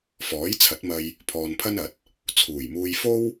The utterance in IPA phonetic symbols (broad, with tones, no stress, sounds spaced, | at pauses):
f ɔː˨˥ j t͡sʰ ɐ˨˥ t̚ m ɐ˧ j | pʰ ɔː˧ n pʰ ɐ˥ n ɐ˨˥ t̚ | t͡sʰ uː˨˩ j m uː˧ j f o˥ w